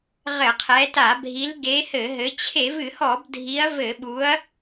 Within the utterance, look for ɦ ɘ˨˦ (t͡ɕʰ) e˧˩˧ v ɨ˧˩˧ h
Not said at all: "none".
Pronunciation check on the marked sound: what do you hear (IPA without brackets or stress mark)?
t͡ɕʰ